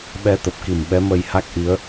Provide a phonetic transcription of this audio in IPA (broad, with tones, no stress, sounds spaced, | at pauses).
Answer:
ɓ ɛ˧ t̪ ə˨˩ p̚ k i˧˩ m ɓ ɛ˨˦ m ə˧ j h a˦˥ k̚ ʔ i˨˦ ə̯